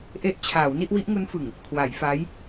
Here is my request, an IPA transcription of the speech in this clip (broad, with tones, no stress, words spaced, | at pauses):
ʔe˦˥ʔ t͡ɕʰaː˩˦w ni˥˩ʔ wi˦˥ʔŋu˦˥nfɯ˨˩ŋ | kʰwa˩˦jfa˦˥j